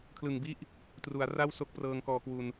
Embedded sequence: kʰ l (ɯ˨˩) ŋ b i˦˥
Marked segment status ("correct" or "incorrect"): correct